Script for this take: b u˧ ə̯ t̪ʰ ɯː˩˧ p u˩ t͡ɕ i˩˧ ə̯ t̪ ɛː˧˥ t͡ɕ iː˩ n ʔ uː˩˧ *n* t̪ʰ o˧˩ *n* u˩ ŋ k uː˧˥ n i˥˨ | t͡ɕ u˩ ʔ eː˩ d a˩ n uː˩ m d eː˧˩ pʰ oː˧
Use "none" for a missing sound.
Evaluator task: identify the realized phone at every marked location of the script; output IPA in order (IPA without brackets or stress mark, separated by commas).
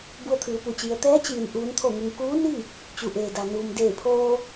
n, ŋ